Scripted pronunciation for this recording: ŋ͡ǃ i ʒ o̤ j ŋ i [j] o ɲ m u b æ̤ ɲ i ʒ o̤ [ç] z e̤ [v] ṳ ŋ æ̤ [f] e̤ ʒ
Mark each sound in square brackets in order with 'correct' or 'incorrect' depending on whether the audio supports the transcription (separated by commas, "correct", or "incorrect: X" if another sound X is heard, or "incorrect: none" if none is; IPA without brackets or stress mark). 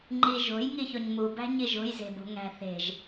incorrect: ç, incorrect: j, incorrect: b, incorrect: θ